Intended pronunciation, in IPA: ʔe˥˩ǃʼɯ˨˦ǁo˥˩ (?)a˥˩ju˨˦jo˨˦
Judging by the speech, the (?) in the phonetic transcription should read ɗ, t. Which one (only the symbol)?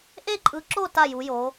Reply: t